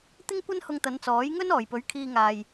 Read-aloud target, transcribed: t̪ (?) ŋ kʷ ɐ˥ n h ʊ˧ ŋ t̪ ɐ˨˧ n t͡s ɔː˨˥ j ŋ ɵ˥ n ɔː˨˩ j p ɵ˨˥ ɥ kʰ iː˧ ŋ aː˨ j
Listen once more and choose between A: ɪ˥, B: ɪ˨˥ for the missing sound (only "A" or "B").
A